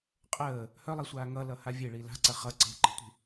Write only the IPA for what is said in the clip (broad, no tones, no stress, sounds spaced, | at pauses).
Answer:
qʼ əː | h œ lˠ i sʷ aː ŋ ʌ l ʌ h a vʲ e ɭ i l a̤ ǀ ɐ χ ʌ ǀ e̤ ǃ ə̤ tʷ i̤